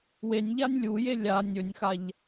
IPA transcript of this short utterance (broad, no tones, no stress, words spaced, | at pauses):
wenʲʎanʲ lʲuje lʲa nʲɵnʲxaʎ